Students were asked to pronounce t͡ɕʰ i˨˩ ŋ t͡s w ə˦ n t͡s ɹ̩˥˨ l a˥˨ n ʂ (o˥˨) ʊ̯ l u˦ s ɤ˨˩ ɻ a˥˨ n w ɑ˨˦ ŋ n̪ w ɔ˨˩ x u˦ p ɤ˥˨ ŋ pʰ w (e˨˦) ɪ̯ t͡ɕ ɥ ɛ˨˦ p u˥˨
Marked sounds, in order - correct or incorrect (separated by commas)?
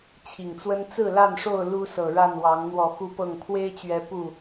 correct, incorrect